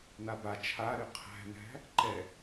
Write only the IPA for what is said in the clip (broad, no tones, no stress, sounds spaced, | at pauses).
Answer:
n a b a t͡ʃʰ a ɾ y qʰ æ̤ n æ̤ | ǃ ɛ